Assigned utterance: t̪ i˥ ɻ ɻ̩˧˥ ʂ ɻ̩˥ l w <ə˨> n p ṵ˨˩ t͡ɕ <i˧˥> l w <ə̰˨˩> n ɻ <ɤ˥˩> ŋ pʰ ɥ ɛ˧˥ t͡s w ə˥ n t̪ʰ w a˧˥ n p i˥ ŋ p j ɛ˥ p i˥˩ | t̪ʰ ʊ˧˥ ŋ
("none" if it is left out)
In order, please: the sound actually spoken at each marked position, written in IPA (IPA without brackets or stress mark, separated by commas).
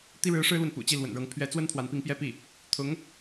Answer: ə˨, i˥˩, ə̰˨˩, ɤ˧˥